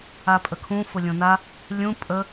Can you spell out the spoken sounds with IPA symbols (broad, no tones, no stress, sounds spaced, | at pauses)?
a pʼ ə kʰ ũ f ʊ lʲ õ n a | lʲ ũ pʼ ə